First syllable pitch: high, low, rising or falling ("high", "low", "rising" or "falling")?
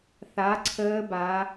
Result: rising